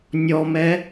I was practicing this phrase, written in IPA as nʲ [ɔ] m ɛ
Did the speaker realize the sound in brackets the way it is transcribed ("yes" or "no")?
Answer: yes